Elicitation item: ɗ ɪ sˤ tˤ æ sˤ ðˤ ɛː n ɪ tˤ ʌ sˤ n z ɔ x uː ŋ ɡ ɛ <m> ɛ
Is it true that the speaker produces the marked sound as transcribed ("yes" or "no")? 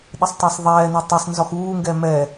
yes